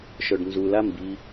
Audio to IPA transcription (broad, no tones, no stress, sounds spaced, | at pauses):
ʃ œ ɖ n z u l a m b i